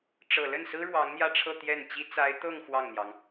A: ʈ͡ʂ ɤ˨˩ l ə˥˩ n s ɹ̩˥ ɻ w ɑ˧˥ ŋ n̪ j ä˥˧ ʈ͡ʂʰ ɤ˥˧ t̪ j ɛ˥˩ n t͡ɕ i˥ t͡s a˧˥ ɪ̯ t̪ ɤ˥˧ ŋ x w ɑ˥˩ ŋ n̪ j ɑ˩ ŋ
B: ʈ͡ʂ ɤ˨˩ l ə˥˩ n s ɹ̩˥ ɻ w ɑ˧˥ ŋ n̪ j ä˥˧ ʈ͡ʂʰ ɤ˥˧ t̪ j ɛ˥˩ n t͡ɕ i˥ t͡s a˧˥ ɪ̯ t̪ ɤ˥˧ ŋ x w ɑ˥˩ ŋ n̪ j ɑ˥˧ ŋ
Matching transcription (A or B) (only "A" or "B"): A